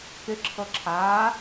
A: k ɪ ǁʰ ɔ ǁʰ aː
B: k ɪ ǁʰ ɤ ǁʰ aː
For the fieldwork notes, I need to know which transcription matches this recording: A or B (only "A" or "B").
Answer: B